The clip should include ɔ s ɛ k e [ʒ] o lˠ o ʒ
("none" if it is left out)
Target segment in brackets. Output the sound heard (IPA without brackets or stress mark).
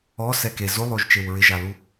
z